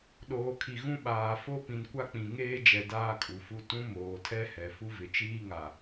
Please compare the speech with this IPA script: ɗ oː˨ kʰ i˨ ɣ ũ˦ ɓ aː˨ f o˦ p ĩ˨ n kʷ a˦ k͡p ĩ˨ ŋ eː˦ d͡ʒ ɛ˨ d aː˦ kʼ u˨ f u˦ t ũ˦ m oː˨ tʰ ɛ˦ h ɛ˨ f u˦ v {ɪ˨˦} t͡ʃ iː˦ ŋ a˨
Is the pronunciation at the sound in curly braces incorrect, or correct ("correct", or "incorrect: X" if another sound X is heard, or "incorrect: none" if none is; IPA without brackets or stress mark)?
incorrect: ɪ˨